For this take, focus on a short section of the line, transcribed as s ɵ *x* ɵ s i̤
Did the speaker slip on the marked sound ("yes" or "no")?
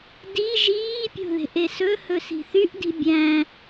yes